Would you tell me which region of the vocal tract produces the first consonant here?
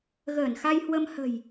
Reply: velum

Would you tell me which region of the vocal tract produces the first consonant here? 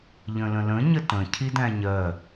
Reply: palate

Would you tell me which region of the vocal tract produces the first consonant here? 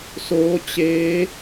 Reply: tongue tip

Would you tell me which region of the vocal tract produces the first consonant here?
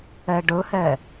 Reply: retroflex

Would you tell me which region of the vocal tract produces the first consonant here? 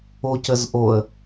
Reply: palate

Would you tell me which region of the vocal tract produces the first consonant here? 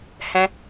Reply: throat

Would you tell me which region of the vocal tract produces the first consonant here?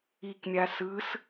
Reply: velum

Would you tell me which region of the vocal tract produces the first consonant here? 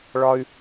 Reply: retroflex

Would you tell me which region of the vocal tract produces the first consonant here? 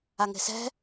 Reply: velum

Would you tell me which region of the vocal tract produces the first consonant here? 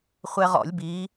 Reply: uvula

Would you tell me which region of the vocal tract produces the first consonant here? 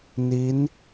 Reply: tongue tip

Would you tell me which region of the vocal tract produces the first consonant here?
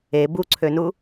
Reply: lips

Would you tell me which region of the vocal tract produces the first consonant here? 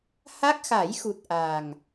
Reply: throat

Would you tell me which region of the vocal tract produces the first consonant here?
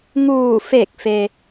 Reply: velum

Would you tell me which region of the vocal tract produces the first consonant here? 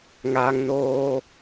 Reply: velum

